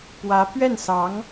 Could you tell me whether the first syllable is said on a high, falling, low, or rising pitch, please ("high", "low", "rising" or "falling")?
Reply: rising